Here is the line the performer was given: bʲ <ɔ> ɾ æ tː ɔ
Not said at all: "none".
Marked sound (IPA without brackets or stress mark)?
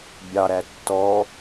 ɑ